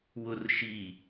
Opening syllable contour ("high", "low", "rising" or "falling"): low